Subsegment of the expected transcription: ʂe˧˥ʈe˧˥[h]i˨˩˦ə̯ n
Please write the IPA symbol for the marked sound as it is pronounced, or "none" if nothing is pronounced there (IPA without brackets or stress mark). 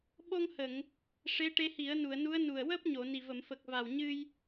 h